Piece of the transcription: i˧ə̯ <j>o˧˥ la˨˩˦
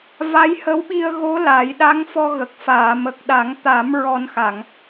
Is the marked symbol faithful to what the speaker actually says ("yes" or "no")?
no